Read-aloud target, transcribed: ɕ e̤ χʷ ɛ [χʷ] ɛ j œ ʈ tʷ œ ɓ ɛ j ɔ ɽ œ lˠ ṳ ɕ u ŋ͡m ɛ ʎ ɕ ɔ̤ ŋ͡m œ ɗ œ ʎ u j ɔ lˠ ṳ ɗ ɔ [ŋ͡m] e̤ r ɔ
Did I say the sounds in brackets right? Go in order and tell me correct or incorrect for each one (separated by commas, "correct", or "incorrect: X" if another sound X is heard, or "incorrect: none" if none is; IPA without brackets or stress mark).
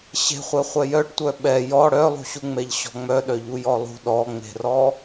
correct, correct